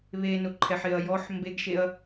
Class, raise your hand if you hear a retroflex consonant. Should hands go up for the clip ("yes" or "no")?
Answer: no